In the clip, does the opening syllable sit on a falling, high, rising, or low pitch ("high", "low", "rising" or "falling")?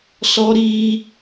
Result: high